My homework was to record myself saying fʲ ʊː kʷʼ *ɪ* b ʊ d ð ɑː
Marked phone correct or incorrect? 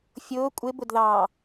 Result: correct